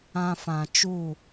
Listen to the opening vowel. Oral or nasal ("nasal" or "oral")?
nasal